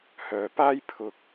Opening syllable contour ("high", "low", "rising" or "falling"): low